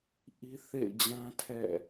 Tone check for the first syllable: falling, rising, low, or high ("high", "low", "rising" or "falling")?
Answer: high